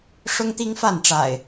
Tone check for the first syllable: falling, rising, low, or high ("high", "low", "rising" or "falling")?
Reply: high